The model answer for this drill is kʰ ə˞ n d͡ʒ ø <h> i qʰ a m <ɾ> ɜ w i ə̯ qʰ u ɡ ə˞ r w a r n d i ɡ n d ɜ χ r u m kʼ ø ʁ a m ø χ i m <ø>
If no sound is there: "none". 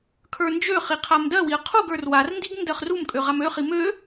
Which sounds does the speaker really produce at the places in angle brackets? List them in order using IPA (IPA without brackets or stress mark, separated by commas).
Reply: χ, d, ø